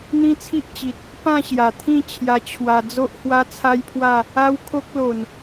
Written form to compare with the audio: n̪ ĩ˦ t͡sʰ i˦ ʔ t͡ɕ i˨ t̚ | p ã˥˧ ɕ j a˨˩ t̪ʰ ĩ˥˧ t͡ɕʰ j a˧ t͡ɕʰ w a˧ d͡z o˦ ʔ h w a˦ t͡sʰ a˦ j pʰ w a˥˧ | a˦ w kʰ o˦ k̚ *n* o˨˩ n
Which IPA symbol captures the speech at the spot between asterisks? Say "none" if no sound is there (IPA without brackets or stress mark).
l